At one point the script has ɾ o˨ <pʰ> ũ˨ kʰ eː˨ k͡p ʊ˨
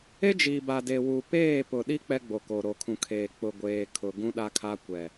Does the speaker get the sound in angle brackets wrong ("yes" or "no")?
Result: yes